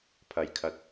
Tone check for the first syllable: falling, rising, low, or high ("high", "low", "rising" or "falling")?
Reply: low